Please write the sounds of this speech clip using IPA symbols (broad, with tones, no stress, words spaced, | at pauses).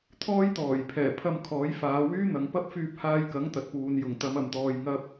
t̪ʰɔː˥jt̪ɔː˨˩jpʰɛː˨˩ pʰɐ˧mkʰɔː˨˥jfaː˨˧ wyː˥n̪ɐ˨ŋ pɐ˥p̚fyː˧p̚haː˧jkɐ˨˥ŋ t̪ɐ˨t̚puː˨n jʊ˨˩ŋt̪ɐ˨˧m ɐ˨˩mt̪ɔː˨j ŋɐ˧p̚